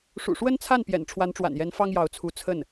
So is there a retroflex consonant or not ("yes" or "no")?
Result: yes